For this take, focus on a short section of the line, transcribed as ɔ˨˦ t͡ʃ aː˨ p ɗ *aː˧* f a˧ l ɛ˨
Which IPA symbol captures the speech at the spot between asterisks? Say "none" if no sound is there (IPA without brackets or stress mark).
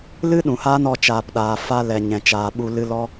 aː˨